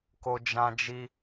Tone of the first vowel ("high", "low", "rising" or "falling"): high